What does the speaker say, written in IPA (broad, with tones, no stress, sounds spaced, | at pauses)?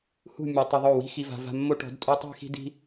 h ṳ˦˨ mʲ ɔ˨ tˤ ɪ˧ ðˤ o˦˨ w i̤˦ x i˨ v a̤˨ v a̤˧ mː o˦ ʈ ɔ̤˨˦ d tʼ u˧ tˤ i̤˦˨ x i̤˦ d i̤˦